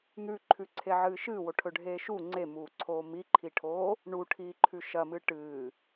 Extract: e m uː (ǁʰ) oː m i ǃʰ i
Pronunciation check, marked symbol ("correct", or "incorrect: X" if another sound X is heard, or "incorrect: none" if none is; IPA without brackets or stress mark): incorrect: ǀʰ